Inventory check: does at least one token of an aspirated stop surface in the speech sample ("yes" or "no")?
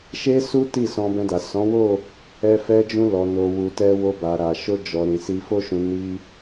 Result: no